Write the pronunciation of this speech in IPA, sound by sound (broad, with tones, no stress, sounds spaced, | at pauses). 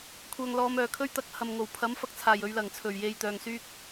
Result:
kʷʰ œː˨ ŋ l ɔː˨˧ m œː˨˩ kʰ ɵ˥ ɥ t̪ ɐ˧ k̚ h ɐ˨ m ŋ o˨˩ w pʰ ɐ˨˥ m f ɐ˧ k̚ t͡sʰ aː˨˩ j ɵ˨ ɥ l ɐ˨˩ ŋ t͡sʰ ɵ˨˩ ɥ j e˨ j t̪ œː˨ ŋ s yː˥ k̚